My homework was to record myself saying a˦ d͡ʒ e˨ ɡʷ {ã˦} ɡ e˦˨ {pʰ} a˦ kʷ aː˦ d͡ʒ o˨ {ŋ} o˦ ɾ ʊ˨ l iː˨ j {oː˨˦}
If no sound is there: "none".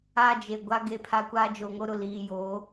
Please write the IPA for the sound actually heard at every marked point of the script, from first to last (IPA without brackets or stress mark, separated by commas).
a˦, pʰ, ŋ, oː˨˦